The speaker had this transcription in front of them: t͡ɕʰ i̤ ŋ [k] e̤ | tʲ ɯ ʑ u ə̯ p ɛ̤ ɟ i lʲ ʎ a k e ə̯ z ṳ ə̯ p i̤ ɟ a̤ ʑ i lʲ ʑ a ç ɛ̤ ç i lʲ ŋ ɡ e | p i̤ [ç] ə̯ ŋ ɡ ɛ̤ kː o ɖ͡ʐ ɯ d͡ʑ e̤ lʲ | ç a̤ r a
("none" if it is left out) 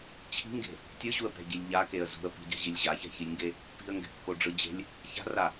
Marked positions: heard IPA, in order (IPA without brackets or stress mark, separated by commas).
ɡ, none